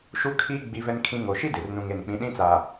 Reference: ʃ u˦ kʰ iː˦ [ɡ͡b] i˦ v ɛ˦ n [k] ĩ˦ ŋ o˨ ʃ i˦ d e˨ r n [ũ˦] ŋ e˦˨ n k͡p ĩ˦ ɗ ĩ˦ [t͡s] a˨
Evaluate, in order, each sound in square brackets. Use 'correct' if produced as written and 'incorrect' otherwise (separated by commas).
correct, incorrect, correct, correct